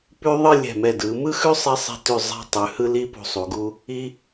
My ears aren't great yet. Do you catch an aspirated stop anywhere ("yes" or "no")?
no